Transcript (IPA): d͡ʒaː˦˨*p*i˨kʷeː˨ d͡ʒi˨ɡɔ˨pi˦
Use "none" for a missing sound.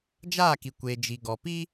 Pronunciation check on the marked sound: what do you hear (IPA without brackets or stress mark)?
k